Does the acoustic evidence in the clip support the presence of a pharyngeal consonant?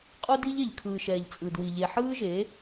yes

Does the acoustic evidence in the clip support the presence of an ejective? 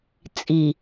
yes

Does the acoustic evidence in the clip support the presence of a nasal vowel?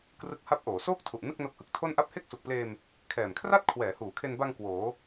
no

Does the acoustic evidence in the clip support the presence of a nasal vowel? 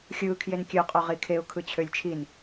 no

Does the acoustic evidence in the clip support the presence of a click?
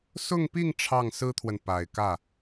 no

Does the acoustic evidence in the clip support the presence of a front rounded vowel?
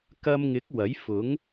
no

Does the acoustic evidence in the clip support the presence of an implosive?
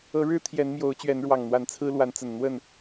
no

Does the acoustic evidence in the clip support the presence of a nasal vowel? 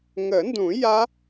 yes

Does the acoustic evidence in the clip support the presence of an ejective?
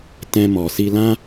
no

